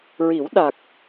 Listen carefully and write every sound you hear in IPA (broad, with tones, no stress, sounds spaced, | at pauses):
ɹ i˨˩˦ w ɗ a˨˩ k̚